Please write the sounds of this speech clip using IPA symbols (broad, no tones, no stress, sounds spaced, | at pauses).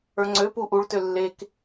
ə˞ ŋ͡ǀ ø p u ʔ u ɭ t ø lː e k